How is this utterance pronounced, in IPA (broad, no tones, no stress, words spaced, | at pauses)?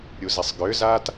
ɾʲuzisˤɡʏːzaːt